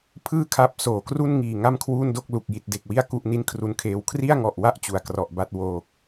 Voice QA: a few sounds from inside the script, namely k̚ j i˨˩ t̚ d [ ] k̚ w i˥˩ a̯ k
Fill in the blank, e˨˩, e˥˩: e˨˩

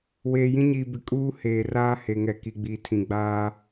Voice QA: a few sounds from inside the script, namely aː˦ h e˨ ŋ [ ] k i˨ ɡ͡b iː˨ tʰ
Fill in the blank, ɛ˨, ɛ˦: ɛ˨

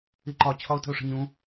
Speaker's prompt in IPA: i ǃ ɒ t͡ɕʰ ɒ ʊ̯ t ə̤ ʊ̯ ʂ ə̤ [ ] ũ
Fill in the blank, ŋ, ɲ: ɲ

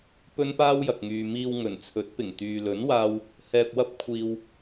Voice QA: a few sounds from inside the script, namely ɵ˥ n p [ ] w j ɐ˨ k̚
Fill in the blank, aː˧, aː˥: aː˥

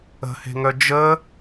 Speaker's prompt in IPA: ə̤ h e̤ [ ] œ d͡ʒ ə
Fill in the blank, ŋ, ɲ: ŋ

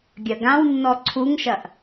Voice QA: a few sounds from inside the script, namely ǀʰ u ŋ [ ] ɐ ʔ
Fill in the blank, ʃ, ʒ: ʃ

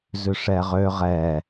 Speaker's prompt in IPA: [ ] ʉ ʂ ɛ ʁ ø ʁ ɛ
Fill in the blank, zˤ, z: z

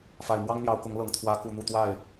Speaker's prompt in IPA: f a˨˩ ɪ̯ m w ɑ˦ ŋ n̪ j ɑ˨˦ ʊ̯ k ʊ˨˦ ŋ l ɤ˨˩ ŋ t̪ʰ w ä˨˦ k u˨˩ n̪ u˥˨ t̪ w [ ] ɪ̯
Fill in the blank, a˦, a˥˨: a˥˨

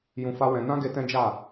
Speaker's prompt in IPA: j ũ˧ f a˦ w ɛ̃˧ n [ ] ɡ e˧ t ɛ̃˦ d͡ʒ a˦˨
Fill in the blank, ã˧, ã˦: ã˦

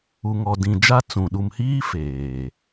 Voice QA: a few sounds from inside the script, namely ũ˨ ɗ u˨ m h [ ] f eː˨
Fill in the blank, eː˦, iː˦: iː˦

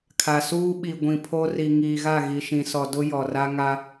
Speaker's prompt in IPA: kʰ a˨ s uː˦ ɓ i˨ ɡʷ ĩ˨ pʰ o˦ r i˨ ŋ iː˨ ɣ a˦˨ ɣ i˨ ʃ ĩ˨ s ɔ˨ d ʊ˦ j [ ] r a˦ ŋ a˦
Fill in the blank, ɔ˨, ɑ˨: ɔ˨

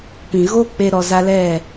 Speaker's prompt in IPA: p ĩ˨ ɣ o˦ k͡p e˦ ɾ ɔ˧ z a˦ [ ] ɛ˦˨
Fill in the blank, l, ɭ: l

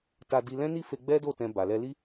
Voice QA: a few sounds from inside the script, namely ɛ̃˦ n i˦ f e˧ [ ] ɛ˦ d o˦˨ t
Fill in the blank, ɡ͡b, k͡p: ɡ͡b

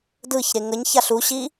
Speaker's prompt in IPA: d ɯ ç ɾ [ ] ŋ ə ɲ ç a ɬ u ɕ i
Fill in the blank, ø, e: e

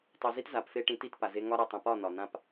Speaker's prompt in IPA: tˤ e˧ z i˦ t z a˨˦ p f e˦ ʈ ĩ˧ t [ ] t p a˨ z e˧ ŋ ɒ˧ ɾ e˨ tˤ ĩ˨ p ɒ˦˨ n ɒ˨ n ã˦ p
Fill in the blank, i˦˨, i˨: i˦˨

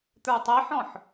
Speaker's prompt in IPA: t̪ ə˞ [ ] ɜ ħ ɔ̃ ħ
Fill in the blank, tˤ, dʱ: tˤ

